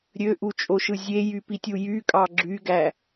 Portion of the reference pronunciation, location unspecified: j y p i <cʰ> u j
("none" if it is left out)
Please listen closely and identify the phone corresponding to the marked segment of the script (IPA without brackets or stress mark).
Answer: tʲ